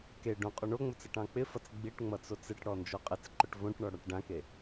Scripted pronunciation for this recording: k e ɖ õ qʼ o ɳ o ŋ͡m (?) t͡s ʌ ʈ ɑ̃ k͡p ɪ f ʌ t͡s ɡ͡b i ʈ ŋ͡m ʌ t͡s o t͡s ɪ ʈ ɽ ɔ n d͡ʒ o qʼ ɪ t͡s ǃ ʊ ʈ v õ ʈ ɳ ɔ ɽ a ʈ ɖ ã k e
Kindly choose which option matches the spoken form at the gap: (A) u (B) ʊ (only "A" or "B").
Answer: B